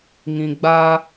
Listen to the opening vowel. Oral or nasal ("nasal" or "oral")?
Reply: nasal